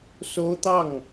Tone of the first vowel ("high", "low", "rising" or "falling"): high